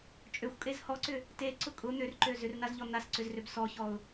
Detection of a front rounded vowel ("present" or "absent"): present